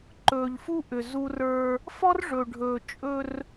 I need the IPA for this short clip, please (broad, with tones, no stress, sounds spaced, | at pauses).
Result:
ǃ ɵː˨ ʎ f u˦ ʔ ʏ˨ z u˦ r ə˞˦ | f ɔ˦ r ʐ ɵ˨ ɖʱ ɵː˨ t͡ʃʼ ɵ˦ r